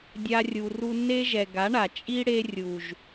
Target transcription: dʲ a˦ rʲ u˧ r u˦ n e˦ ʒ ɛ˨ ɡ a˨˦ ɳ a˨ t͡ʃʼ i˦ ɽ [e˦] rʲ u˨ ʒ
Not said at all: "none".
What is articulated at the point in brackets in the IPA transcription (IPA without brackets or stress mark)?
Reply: e˦